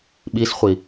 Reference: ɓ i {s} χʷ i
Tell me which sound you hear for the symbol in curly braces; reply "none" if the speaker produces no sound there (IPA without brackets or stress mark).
s